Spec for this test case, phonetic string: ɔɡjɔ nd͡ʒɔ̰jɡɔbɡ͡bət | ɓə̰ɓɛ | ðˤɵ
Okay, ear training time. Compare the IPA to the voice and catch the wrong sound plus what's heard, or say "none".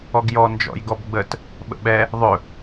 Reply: none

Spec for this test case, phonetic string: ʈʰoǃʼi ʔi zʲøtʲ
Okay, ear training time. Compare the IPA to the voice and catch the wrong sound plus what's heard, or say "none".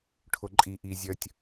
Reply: ø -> œ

